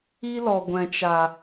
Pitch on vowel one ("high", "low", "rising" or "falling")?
high